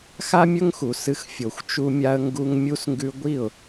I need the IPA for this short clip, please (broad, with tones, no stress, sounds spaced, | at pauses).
x a˦ mʲ ɵ˦ ŋ x u˨ s ɨ˧ x fʲ o˨ xʷ t͡ʃ u˧ mʲ a˧ ə̯ ŋ ɡ u˧ ŋ mʲ u˧ s ŋ ɡ ʉ˧ ɡʷ i˦˨ ʊ̯